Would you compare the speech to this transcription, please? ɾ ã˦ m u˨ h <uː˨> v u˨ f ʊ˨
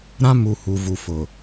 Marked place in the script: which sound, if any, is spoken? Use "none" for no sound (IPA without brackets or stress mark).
u˨